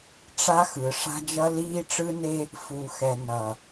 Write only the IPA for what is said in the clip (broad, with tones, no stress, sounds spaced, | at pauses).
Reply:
ʈ͡ʂ a˦ x ɯ˨ ʂ a̤˦ d͡ʒ ʌ˦ l iː˦ ʈ͡ʂ ɯ˦ n e˦ | f u˨ x ɛ˨ n ʌ˨